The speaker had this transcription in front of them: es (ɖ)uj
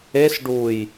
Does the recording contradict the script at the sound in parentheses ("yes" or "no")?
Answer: no